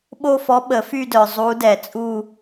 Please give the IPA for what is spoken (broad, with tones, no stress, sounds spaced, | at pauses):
ɓ o˥˧ f ɔ˧˥ ɓ ə˨˩˦ f y˥˧ d œ˨ zˤ u˧˥ d ɛ˨˩˦ t͡sʼ u˥˧